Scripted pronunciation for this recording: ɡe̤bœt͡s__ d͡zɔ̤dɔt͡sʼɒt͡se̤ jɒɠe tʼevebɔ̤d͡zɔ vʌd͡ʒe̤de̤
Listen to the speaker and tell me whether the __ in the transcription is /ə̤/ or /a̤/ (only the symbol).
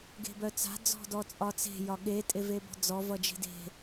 a̤